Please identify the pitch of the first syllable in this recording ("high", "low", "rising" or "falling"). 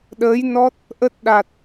rising